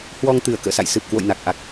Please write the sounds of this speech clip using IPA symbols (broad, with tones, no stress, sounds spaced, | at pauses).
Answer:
h w ɔ˧ ŋ t̪ ɨ˧˩ ə̯ k ə̰ː˧˨ s a̰˧˨ j s ɨ˨˩ p̚ k w o̰˧˨ j n a˨˩ k̚ ʔ a˨˩ k̚